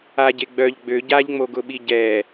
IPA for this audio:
a ɟ e ɡ͡b œ ʎ ɡ͡b ø ɟ a ʎ ŋ͡m o ɡ ʊ ɓ i ɟ ɛ

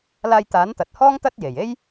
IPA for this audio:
l aː˧ j t̪ aː˨˥ n t̪ ɐ˨ t̚ h ɔː˥ ŋ t̪ ɐ˥ t̚ j e˨˩ j e˥ j

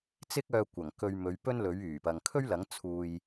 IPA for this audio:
t͡s ɪ˥ k̚ œː˧ kʷ ɐ˨˩ ŋ k ɵ˧ ɥ m ɵ˨˧ ɥ p ɵ˥ n l ɵ˨˥ ɥ yː˨˩ p ɐ˨ ŋ kʰ ɵ˥ ɥ l ɐ˨˥ ŋ t͡sʰ uː˧ j

